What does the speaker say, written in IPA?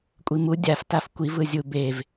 kʷʼ i m u dʲ a f t a f kʷ i v ɯ zʲ u b e v

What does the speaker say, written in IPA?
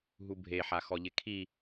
ɦ u bʱ e ħ a x ɔ ʎ ɪ kʰ i

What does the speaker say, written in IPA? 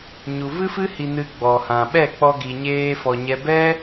ɲ u˨ v ɨ˦ f ɨ˦ h i˧ n ɨ˧ ɡ͡b ɔ˨ h ã˨ ɓ ɛ˦˨ k͡p ɔ˧ ɡ i˨ ɲ eː˧ f ɔ˨ ɲ ɛ˧ b ɛ˦

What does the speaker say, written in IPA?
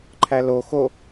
ǃʰ æ l o x o

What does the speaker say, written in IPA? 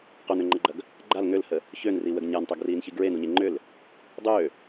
q o n ø ŋ͡ǃ ɐ ɡ͡ǃ ɐ ɡ | ɡ͡ǃ a l ŋ ø l h ə | ç ø n r i w ə ɡ ɲ a n tˤ o ɡ r iː n ç i ɡ ɹ e n u ɲ e ŋ͡ǃ ʏ l | dˤ ø

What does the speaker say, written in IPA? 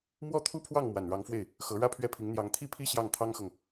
m w ɔ˥ t̪ʰ u˥ pʰ w ɑ˥˩ ŋ m w a˨˩ n ɻ ɑ˧˥ ŋ f w e˥˩ ɪ̯ | x ɤ˧˥ ɻ ä˥ pʰ ɥ ɛ˥˩ pʰ i˧˥ ŋ n̪ j ɑ˧˥ ŋ t̪ʰ i˥ pʰ i˥ ɕ j ɑ˥˩ ŋ t̪ʰ ɑ˥ ŋ x ɤ˨ ŋ

